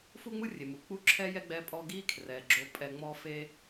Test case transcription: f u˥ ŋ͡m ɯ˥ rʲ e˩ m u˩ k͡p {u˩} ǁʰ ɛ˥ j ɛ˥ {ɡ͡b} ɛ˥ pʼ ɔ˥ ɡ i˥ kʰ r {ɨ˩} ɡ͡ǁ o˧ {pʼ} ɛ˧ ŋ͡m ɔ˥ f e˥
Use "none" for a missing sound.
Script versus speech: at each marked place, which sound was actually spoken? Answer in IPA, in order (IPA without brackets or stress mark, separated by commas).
u˥, ɡ͡b, ɛ˩, pʼ